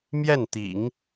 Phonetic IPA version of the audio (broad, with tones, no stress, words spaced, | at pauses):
mjɛ˥˩nt̪ḭ˨˩˦ŋ